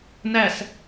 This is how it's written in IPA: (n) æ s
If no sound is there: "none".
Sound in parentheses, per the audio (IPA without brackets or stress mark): n